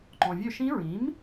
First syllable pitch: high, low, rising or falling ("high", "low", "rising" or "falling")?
low